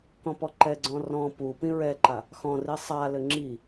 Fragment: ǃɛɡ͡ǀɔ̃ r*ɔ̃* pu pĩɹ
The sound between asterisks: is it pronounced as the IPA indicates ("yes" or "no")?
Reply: yes